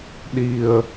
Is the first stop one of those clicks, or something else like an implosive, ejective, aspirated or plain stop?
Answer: implosive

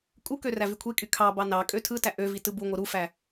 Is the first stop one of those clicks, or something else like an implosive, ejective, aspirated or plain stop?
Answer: ejective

